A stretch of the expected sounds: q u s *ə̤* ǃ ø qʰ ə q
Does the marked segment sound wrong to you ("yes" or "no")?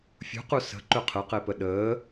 no